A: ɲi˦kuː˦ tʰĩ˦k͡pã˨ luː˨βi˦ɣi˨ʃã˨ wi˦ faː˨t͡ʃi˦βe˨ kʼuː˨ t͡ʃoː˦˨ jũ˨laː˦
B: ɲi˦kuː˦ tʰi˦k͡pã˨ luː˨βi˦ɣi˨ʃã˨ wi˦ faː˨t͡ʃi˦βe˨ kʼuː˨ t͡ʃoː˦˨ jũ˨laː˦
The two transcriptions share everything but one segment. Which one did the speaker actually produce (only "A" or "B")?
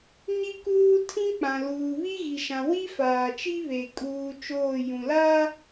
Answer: A